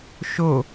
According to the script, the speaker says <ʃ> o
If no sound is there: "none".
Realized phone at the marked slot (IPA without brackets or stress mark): ʃ